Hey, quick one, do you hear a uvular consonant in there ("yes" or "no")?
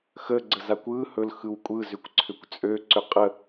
yes